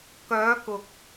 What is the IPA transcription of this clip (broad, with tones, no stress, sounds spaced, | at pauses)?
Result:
k œː˨˧ k ʊ˨ k̚